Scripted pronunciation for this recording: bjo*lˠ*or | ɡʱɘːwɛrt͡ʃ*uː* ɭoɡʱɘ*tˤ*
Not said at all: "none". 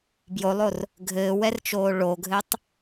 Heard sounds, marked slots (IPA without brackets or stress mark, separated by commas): lˠ, oː, tˤ